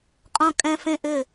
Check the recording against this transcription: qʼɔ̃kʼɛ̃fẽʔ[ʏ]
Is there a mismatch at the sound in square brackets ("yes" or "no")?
no